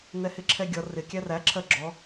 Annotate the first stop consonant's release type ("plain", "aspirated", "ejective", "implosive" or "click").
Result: click